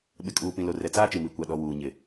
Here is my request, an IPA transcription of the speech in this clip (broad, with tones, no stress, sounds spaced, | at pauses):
ɓ ɪ˨ kʼ uː˨ p ĩ˨ l o˨ r ɛ˨ t͡s aː˦ t͡ʃ i˨ m i˨ kʷ a˨ ɗ ɔ˨ w uː˨ ɲ ɪ˨